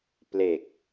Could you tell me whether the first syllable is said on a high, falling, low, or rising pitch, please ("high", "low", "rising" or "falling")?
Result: low